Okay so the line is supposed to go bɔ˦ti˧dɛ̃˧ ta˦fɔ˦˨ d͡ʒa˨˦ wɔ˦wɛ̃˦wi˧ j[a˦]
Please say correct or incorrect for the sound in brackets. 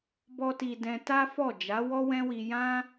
incorrect